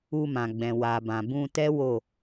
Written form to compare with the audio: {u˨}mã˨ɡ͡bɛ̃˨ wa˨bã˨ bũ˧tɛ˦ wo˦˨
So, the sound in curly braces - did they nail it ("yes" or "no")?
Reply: no